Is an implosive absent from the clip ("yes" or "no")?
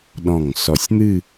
no